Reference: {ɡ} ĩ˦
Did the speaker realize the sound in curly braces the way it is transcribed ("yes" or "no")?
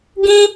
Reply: yes